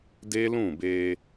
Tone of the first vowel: high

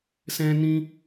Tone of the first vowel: high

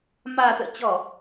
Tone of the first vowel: low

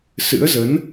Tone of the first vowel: rising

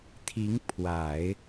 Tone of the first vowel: rising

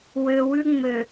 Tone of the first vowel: low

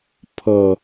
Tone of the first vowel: low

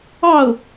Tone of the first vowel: falling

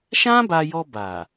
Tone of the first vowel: high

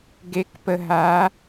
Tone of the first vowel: rising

